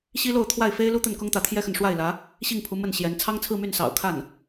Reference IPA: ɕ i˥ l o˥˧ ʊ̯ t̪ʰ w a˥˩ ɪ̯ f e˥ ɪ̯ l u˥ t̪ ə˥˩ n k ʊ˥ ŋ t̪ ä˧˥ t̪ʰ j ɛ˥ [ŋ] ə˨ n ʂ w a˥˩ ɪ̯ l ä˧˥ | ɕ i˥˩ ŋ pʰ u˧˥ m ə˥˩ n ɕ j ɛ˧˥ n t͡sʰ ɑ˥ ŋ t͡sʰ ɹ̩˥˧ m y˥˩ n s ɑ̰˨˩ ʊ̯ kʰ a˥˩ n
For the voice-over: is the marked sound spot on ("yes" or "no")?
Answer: no